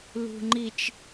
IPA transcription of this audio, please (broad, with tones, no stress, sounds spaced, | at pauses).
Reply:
l ṳ˨ ŋ͡ǃ i˨ t͡ʃ